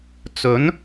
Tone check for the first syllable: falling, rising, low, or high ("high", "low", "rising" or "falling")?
rising